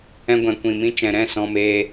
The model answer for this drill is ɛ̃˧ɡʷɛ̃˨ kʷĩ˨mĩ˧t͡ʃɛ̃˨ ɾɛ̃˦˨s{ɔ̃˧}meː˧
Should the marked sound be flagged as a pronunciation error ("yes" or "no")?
no